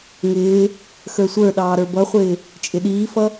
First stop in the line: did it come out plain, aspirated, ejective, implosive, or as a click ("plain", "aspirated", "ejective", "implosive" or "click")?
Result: implosive